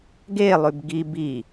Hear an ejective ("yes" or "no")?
no